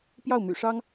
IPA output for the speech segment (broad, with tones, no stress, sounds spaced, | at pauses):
p j ɑ˥˩ ʊ̯ m y̰˨˩ ʂ ɑ˥ ŋ